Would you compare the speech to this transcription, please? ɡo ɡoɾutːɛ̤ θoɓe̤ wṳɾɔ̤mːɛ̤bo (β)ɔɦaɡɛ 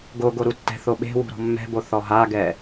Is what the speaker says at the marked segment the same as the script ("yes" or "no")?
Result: no